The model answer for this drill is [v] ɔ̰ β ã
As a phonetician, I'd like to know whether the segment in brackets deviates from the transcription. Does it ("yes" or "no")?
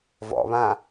no